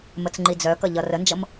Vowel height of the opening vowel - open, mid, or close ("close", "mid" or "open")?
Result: mid